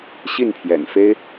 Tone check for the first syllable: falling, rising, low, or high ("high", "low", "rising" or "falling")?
falling